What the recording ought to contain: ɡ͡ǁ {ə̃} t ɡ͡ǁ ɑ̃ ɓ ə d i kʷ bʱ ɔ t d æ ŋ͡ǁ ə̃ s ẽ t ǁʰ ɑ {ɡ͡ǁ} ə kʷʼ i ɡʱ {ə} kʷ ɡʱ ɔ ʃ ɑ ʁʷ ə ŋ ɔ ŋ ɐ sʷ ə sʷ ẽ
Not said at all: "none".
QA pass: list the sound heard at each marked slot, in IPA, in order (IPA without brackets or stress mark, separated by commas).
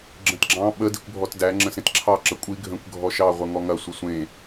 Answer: ə̃, ǁ, ə̃